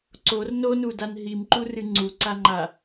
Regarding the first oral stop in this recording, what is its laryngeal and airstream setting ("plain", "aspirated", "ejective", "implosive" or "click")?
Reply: click